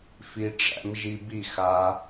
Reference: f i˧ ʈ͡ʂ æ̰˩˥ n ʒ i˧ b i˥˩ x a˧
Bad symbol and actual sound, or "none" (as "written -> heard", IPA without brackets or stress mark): n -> m